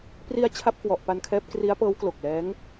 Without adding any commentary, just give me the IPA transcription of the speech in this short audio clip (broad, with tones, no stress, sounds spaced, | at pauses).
p r i˧ a̯ t͡ɕʰ a˥˩ p̚ k w ɔ˨˩ ʔ p a˧ n kʰ ɛː˦˥ p̚ k r i˦˥ a̯ p ɤː˦˥ w k l o˨˩ k̚ l ɛː˦˥ ŋ